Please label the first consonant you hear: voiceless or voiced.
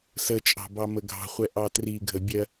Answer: voiceless